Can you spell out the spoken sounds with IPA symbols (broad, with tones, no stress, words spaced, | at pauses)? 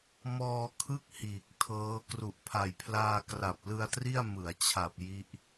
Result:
mɔː˧kʰɯ˥˩k̚ hiː˨˩k̚tʰɤː˦˥ kru˨˩ʔpʰa˨˩jpʰlaː˧ kra˨˩p̚ lɯ˧a̯tri˥˩a̯ mɯ˩˦a̯t͡ɕʰa˨˩p̚ ji˦˥ʔ